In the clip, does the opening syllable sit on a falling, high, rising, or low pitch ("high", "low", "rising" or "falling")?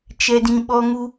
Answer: high